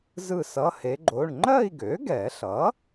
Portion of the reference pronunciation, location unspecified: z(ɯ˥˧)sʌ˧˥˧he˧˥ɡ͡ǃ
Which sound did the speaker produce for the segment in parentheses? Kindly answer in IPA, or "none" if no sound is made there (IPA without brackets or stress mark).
ɯ˥˧